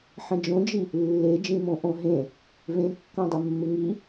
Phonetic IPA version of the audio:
ħ ɐ̃ d͡ʒ õ d͡ʒ i | lː e d͡ʒ ĩ m õ ʔ õ ɦ ẽ | v ẽ kː ɐ̃ dˤ ə mː ɪ ŋ i

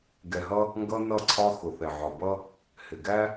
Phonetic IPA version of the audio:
ɡ ɛ˨ ɦ ʌ˦ | ŋ ɡ ʌ˦ n ʌ˦˨ ǀʰ ɒ˦ x ʊ˨ θ ɛ˨ ʕ ɒ˨ b ʌ˦ | h ɪ˨ ɡ æ˦

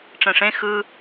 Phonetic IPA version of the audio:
ʈ͡ʂ ɛ̃ ʂ ẽ x ɯ

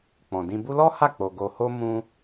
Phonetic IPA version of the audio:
k͡p ɔ̃˨ d ĩ˧ b u˦ l ɔ˦ h a˦˨ k͡p o˨ ɡ o˧ h o˦ m ũ˧

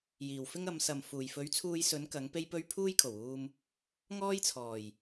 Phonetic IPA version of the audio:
j iː˨˩ w f ɪ˥ ŋ ɐ˨˧ m s ɐ˨ m f uː˨˩ j f ɵ˨˥ ɥ t͡sʰ uː˧ j s ɵ˨˥ n k ɐ˨˥ ŋ p e˥ j p ɵ˥ ɥ pʰ uː˥ j kʰ o˨˩ w uː˧ m | ŋ ɔː˥ j t͡sʰ ɔː˨˩ j

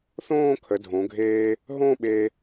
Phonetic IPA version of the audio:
θ õː˥˧ kʰ ə˩˧ dʱ õ˩˧ ɡʱ eː˧ | ɦ õ˥˧ ɓ e˧

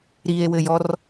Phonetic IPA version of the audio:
ɾ i e̯ w ɘ j ɔ r

